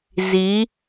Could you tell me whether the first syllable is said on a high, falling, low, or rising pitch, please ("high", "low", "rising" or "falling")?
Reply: rising